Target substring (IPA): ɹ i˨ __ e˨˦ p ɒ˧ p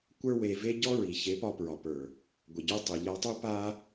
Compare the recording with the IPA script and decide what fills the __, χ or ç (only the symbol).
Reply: ç